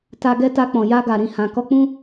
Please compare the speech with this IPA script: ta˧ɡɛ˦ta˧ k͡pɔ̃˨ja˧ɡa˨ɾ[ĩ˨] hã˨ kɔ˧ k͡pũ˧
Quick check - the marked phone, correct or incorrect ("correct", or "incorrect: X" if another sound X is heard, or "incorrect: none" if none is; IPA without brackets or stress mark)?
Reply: correct